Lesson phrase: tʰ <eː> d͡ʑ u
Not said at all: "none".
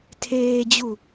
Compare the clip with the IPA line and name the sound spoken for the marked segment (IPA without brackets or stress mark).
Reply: eː